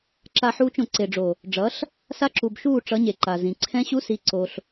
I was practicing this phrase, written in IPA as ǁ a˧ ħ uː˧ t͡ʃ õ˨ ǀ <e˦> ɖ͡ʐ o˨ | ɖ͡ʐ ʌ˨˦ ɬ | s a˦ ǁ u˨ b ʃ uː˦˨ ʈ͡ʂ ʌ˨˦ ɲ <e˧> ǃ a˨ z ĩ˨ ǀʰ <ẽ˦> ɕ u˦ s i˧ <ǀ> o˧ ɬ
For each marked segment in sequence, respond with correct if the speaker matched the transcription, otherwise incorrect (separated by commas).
incorrect, incorrect, incorrect, correct